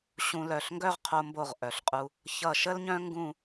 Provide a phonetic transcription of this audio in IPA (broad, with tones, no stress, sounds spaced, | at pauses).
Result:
ɕ ũ˧ l œ˧˩ ɬ ŋ ɡ œ˥˧ ʁ qʰ o˧ m b o˧˩ ʁ ʔ œ˩˧ ɬ qʼ u˧ | ç ʌ˧˩ ʃ ə˥ l ɲ œ̃˥ ŋ ɡ ũ˥˧